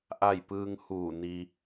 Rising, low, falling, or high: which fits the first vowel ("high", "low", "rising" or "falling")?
falling